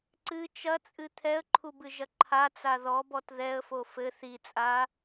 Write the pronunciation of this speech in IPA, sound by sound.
ǀ ɨ t͡ʃ ɐ t͡sʼ ɨ t̪ʰ ɛ ə̯ ǃʰ u b ɨ ʒ ɐ ǃʰ a t͡s a ð ɔ b ɔ t ð ɛ ə̯ f o f ɘ θ i t͡sʼ a

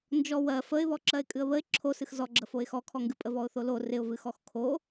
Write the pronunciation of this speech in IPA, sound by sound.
n d͡ʒ ɔ w ɜ f ə ɪ̯ β ɔ ǁ ɜ ɪ̯ kʼ ɨ ə̯ β ə ɪ̯ ǁʰ o s ɨ x z ɔ ɡ͡ǁ ə f o ɪ̯ x ɔ kʰ ɔ ŋ ɡ ɨ pʼ ə v ɔ ʊ̯ θ o l o r ɪ ʊ̯ v ɨ x ɔ x kʰ o

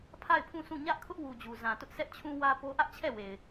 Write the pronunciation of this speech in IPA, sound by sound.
pʰ a˦˨ ɪ̯ pʰ ũ˦˨ sʰ ũ˦˨ ɲ ä˦ ʔ kʰ ʊ˦ ʔ w u˨ d͡ʑ u˨ z ã˨ t ʊ˦ ʔ s ɛ˦ ʔ t͡ɕʰ ũ˦ w ä˦ p o˦ ʔ ä˦ ʔ t͡ɕʰ ɛ˦˨ w e˨ ɪ̯

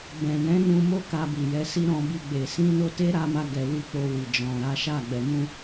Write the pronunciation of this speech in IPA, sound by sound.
b ɛ̃˨ n ɛ̃˨˦ n ũ˧ m o˦ k a˧ b i˨ j ɛ˨˦ s i˧ ɾ ɔ̃˧ b i˧ ɡ͡b e˨ s ĩ˧ n o˧ t e˦ ɾ a˧ m a˧ ɡ ɛ˨ w i˧ k͡p o˧ w i˨ d͡ʒ ɔ̃˨ ɾ a˨˦ ʃ a˦˨ ɡ͡b ɛ˨ m ũ˧

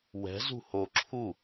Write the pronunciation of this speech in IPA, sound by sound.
w ɛ̤ z ṳ h o ǁʰ u

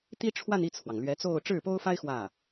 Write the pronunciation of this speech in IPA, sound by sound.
t̪ i˥ ʈ͡ʂʰ w a˥˧ n i˥˩ t͡sʰ w ɑ˩ ŋ l ɥ ɛ˧˥ t͡s o˥˧ ʊ̯ ʈ͡ʂ ɻ̩˥˩ p o˥ ʊ̯ f a˥ ɪ̯ x w ä˥˩

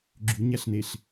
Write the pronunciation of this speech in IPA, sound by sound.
ɡ͡ǁ y ɲ æ ɬ n e ɬ

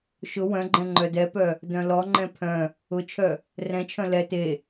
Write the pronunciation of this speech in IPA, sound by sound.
ʃ ʊ w œ̃ ɡ͡ǃ ɛ̃ ŋ͡ǃ œ d ɛ p œ | d œ̃ l ɔ ŋ͡ǃ ɛ̃ pʰ œ̃ | ʊ t͡ʃʰ œ | r ɛ̃ t͡ʃʰ œ̃ l ɛ t e

